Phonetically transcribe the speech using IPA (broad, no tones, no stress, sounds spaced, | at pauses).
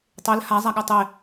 tˤ e l h a zˤ a ɠ œ tˤ e